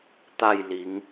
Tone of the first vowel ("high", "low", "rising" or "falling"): falling